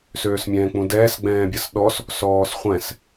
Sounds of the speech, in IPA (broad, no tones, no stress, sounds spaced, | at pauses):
s øː s mʲ ɛ̃ː k͡p ũ d ɛː s ɡ͡b ɛ̃ː bʲ ɐ s ɗ ɔ s | s ɔː s χʷ ɛ̃ s